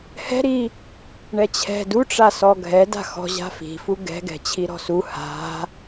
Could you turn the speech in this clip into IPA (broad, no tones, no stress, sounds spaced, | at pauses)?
h ɛ̤ ɾ i | ɳ ɛ t͡ɕʰ ɛ̤ d u ʈ͡ʂ a s ɔ ɡʱ ɛ d a̤ x ɔ̤ ʑ a̤ f i̤ f u ɡ ɛ̤ ɡ ɛ̤ t͡ɕʰ i ɾ ɔ̤ s u h a̤